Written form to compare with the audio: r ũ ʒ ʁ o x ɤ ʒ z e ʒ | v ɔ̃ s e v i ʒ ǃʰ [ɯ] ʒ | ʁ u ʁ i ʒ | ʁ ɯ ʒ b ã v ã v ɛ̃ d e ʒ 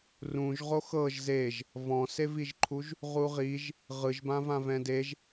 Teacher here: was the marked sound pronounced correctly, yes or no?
no